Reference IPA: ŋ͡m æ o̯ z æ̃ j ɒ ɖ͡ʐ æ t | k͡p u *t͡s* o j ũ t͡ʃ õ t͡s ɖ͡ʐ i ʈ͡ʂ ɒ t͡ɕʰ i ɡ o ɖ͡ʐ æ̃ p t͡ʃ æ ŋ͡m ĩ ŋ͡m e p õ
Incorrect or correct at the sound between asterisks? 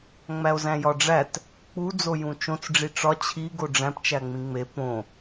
incorrect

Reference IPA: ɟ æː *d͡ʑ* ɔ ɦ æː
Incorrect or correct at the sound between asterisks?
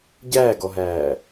incorrect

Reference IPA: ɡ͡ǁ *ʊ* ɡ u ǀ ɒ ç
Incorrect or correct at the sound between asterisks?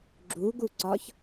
incorrect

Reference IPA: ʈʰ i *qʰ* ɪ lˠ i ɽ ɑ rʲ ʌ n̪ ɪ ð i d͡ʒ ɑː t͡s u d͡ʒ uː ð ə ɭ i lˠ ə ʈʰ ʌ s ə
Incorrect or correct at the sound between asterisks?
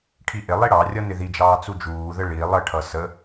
incorrect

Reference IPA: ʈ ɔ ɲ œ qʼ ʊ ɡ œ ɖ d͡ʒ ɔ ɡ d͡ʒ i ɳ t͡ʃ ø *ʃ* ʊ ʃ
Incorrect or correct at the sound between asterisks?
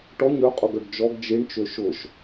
correct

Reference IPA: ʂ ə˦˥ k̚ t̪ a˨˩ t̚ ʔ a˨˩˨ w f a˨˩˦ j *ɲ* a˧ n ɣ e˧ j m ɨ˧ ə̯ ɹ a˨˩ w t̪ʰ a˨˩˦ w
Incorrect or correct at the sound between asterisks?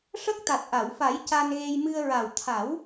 incorrect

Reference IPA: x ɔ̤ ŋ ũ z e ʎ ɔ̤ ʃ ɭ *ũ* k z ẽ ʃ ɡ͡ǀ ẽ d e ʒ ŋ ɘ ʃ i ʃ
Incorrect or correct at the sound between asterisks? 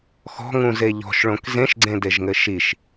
incorrect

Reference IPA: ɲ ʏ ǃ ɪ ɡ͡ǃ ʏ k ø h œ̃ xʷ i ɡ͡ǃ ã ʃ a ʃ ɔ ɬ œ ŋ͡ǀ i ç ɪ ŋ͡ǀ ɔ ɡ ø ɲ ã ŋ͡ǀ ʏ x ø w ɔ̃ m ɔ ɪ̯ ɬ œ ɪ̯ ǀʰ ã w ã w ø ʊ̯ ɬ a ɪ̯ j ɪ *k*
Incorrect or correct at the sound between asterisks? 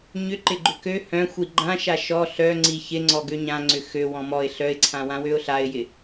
incorrect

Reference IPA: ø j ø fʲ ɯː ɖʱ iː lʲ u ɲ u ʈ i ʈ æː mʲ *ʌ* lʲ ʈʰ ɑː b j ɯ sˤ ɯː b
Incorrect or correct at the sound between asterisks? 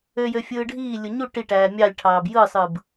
incorrect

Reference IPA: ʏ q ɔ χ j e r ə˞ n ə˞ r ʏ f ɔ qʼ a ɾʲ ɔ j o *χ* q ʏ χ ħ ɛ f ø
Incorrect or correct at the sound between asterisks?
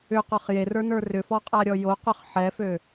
incorrect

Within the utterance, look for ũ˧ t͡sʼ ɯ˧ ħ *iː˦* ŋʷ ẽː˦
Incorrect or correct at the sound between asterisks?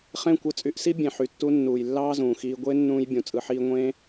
correct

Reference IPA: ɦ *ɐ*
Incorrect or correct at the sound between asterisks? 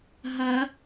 correct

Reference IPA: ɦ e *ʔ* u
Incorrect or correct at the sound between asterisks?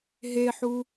incorrect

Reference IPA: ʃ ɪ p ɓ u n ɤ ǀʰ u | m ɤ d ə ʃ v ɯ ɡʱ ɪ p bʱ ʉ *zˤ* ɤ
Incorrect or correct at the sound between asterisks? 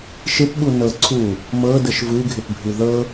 incorrect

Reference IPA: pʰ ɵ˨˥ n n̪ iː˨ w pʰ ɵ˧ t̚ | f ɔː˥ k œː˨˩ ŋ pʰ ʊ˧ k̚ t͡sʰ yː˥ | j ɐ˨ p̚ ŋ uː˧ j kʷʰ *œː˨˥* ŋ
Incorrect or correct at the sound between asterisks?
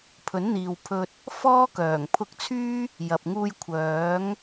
correct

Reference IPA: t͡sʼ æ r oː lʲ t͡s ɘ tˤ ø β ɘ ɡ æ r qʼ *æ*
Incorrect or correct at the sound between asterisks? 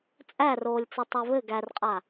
incorrect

